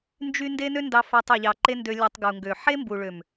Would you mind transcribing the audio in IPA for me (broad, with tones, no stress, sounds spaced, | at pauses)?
n d͡ʒ y˦ n d e˦ n ø˦ n d ɑ˧ f æ˧ tˤ ø˨ ʎ ɑ˨ ǃ e˧ n d ø˧ lʲ ɑ˧ tˤ ɡ u˨ ŋ ɡ ø˨ ħ e˦ m b u˨ ɭ ø˨ m